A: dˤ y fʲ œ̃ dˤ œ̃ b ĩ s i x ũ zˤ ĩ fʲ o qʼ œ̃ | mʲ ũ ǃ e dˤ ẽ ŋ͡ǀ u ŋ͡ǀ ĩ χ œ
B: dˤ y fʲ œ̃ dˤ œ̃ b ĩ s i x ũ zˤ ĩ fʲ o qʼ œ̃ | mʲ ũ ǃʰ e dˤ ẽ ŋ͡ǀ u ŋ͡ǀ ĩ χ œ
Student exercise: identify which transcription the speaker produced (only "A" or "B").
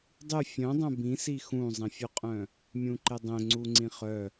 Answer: A